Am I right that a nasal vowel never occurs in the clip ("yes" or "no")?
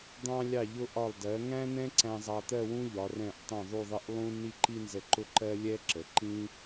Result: no